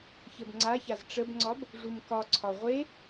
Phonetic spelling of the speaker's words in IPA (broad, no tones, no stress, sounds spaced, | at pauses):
ç ə b ŋ͡ǀ a ç a z ʈ͡ʂ ə b ŋ͡ǀ ɒ b | ʐ u m k ɒ ǀʰ ɒ ʁʷ e